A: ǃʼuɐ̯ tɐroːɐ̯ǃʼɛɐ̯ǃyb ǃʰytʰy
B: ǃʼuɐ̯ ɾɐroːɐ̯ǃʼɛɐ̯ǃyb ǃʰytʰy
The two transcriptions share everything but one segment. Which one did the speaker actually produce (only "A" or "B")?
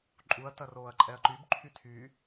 A